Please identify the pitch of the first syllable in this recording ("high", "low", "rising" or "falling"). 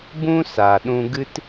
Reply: high